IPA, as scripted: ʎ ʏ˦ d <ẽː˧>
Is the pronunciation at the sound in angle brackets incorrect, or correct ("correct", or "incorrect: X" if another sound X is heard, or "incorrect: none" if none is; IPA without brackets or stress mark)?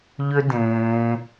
correct